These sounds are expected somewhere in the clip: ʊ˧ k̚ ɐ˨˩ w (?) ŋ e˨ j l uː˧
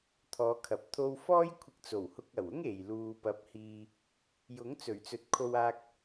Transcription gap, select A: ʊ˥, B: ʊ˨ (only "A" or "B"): A